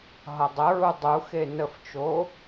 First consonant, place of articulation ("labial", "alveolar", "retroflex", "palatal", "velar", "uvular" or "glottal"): glottal